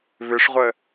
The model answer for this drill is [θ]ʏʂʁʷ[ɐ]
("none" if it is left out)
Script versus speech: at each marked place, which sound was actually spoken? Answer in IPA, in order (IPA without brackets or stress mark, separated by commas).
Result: β, ə